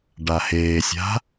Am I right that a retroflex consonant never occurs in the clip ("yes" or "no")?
no